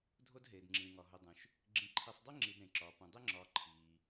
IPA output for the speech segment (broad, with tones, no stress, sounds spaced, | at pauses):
dʱ o˦ d ɦ eː˩ d ŋ͡ǁ ĩː˩ ŋ ɒ˩ ɦ o˨ dˤ ũ˩ ʃ | ɡ͡ǁ ĩ˨ ǃʰ i˨ sˤ dˤ i˥ ŋ͡ǁ i˨ d ɾ ẽ˩ ǁ ɒː˩ p ũ˩ dˤ e˦ ŋ͡ǁ ɒː˨ ǃʰ iː˩